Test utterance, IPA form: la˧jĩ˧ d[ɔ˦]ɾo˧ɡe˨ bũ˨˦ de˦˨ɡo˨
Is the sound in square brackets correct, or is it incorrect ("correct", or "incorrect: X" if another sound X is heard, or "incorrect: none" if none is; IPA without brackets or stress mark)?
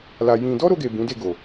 correct